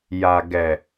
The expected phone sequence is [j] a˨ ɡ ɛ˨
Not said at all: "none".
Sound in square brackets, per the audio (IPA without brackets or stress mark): j